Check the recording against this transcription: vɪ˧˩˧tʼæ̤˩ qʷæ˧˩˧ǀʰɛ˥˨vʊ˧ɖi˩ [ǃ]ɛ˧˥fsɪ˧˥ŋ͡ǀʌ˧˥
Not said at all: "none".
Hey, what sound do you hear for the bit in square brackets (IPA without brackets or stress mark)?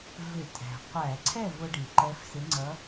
ǃ